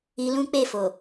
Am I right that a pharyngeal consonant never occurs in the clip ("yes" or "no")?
yes